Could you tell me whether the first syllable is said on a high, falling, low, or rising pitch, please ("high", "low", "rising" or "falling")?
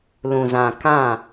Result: low